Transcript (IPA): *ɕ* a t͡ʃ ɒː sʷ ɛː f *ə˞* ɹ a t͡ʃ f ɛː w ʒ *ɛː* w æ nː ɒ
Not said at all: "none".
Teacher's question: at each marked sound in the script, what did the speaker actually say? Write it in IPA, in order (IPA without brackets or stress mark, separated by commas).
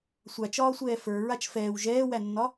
sʷ, ə˞, ɛː